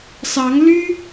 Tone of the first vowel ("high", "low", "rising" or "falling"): rising